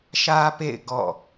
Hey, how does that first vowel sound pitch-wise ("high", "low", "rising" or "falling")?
high